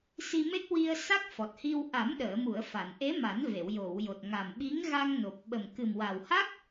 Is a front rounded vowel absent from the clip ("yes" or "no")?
yes